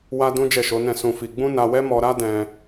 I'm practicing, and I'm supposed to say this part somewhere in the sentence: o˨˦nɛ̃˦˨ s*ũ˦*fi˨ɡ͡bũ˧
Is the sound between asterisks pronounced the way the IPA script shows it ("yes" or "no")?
no